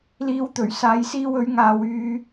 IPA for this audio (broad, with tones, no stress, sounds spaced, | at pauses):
l iː˧ w t̪ ɵ˨˩ ɥ s aː˨˧ j s iː˧ w ɵ˨˧ ɥ ŋ aː˨ w yː˧